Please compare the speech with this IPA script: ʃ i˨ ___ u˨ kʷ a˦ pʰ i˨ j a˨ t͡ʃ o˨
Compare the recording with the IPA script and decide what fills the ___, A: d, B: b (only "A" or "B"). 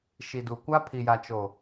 A